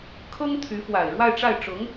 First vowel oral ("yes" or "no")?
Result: yes